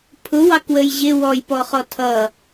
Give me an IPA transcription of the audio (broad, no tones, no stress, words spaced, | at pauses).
pʰʊwɑkwəj ʑɪ wɔjpɔχɔ tʰʌ